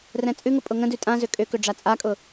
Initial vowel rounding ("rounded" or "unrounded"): unrounded